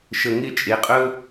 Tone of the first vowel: low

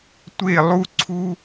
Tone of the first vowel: falling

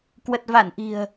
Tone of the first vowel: low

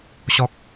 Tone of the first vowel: high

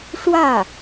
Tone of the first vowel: falling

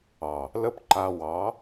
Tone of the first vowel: low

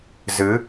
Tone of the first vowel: rising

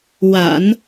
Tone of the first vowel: low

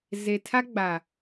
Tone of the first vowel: low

